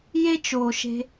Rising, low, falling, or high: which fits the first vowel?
high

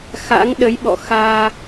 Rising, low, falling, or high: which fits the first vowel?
rising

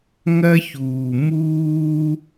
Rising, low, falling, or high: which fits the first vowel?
high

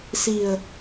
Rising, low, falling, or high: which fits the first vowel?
low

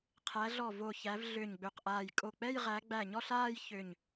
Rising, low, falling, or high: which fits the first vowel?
rising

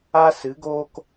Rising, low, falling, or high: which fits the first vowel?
high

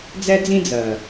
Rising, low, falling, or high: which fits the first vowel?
high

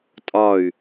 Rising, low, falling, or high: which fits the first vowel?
falling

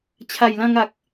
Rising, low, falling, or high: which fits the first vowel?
low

